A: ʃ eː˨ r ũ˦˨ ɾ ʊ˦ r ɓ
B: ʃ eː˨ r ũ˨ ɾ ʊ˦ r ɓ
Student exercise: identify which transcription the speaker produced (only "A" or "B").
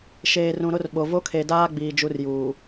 B